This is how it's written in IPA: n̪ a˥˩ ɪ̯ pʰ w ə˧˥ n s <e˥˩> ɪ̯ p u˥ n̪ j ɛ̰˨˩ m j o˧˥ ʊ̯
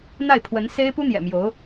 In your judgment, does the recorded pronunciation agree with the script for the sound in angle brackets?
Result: no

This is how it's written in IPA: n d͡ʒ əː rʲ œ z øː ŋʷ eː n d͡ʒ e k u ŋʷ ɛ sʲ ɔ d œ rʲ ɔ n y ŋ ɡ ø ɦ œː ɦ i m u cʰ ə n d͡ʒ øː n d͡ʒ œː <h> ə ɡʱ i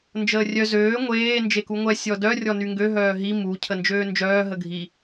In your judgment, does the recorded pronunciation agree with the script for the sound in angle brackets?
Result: no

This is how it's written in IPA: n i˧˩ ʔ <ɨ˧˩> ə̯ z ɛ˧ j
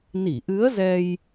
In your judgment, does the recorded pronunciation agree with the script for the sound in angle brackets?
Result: no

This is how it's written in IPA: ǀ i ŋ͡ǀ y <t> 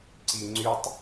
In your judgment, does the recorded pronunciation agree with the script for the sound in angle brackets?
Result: no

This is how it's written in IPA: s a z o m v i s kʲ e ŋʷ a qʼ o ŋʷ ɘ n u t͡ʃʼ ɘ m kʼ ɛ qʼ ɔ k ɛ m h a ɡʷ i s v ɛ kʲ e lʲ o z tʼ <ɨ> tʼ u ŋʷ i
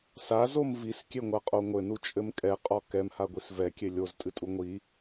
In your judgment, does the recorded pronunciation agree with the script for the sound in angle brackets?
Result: yes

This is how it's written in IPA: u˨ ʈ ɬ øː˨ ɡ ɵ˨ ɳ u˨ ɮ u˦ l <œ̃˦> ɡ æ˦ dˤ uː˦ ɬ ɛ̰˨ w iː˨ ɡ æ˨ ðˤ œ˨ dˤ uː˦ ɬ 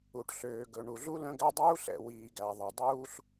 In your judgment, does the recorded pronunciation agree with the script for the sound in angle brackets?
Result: yes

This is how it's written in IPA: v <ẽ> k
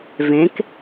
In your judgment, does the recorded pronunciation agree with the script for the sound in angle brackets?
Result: yes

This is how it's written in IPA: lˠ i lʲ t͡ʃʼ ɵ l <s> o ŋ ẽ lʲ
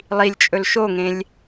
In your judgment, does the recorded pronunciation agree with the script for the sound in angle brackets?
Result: no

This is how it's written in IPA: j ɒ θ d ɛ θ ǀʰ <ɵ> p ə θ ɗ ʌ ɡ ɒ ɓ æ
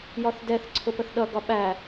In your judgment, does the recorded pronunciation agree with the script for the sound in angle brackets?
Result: no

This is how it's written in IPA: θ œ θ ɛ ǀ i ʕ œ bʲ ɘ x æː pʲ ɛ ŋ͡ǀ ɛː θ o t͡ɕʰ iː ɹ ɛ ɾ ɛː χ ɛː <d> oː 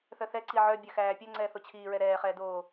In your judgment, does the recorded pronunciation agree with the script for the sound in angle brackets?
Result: yes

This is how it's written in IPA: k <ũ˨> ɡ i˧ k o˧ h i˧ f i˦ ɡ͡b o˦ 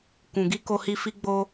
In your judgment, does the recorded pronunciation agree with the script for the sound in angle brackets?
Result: yes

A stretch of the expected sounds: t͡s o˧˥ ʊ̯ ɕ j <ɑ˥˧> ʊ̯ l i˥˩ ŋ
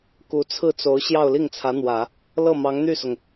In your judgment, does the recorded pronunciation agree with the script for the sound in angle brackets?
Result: yes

